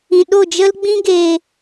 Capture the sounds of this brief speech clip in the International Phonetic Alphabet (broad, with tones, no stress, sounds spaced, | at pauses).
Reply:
ĩ˨ ɗ o˦˨ d͡ʒ ə˦ l ɡ͡b ĩ˦ ɡ e˨